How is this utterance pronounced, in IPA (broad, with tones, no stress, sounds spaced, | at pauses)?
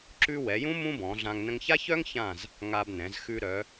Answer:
ǁ ʉ˥ w ɛ˩˧ j ũ˥ m ũ˥ b ɔ̃˩˧ ɮ ã˧ ŋ n ə̃˧ ŋ ç a˥ ç œ˥ ŋ ç ã˧˩ z | ŋ a˧ b n ɛ̃˩˧ z x ʉ˧ ɾ œ˩˧